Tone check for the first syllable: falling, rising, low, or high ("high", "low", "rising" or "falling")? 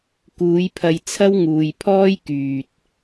rising